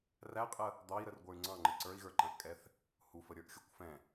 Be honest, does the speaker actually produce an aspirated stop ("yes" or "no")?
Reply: no